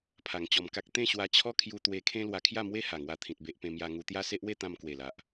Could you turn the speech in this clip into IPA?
pʰa˧ŋt͡ɕɔ˧mka˦k̚ t̪ẽ˥˧ɕwa˧t͡ɕʰɔ˦kʰju˧ t̪we˧kʰẽ˦ lwa˧kʰja˥˧ mwe˦ ha˨˩ŋwa˧t̪ʰĩ˨t̚ be˦ʔpẽ˦mja˦ ŋu˧t̪ja˦se˦ʔwe˥˧ t̪ã˧mkwe˨˩la˨ʔ

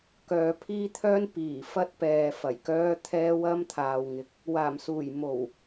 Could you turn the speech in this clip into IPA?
kœː˧pʰiː˥t̪ʰœː˥n piː˨˩fɐ˧t̚ pɛː˨fɐ˨˩jkœː˧ t̪ʰɛː˧wɐ˧mt̪ʰaː˨w ŋɪ˨k̚ | waː˨˩msuː˨˩jmo˨˩w

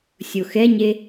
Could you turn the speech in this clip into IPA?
sʲoxɛɲe

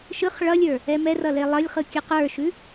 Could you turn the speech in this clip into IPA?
ʃɯχ ɭʌlʲə˞ | ɛmɛrʌ lelˠʌlʲχɯ kʲɯqə˞ʃʉ

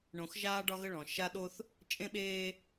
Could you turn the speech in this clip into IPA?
ɳõ˨xʒaː˦ ɖɒ˦ɣə˦ɭɔ̃˨ ʃa˦ ɗo˦θ | t͡ʃʼẽ˦ɓeː˦

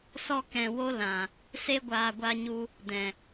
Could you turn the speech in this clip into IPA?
sɔ˧ kɛ̃˨ wo˦lã˨ | se˧ɡʷaː˨ ɡʷa˧ɲu˧ | dɛ̃˨

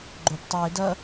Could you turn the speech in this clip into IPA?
ɡ͡ǃop tˤue̯ dɐ

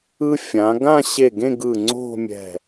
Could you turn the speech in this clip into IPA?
ɯ˧ fʲã˩˧ ɡã˥˧ɕe˧˩ɡẽ˥˧ ɡɯ˧˩ ŋ͡ǀo̤˥˧mʲɛ̤˧˩

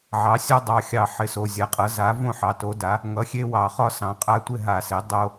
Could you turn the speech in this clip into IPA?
ʕɑ˩˥sʲɒ˦dˤɑ˩˧˩xʲɑ˧˩˧ ħɪ˩˧˩so˩˧˩zʲa˩˥qʼʌ˩˥ za˩˥võ˥˨ ħɑ˩˧˩to˩˥da˩˥ | ŋʌ˩˥xʲe˦wɑ˧˩˧ χɒ˥˨sɑ̃˩˥qʼa˦ tʷɪ˥˨ɦa˧˩˧se˩˥ dˤo˦

